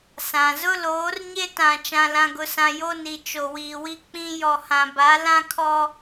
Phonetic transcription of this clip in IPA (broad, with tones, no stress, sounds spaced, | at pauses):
s ã˨ z ʊ˦ l oː˨˦ r ɲ e˦ t ã˨ t͡ʃ ã˨ l ã˨ ɡ ʊ˨ s ã˨ j o˦ n i˨ t͡ʃ o˨ w iː˨ w i˦ k͡p ĩ˦ j ɔ˨ h ã˨ b a˨˦ l ã˦ kʰ ɔ˦